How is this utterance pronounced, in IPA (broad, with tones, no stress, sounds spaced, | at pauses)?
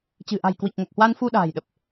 t͡ɕ ɨ̤˨˩ ʔ a̤˨˩ j k w i˨˩ k̚ ŋ o˨˩ k̚ h w a˧ n f u˧ ɗ a̤ː˨˩ j ɗ ə˨˩ p̚